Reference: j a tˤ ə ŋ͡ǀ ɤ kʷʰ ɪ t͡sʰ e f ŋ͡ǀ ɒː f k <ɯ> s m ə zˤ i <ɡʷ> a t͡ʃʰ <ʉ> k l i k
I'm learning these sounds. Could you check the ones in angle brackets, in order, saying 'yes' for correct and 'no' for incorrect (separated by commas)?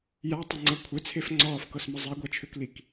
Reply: no, yes, no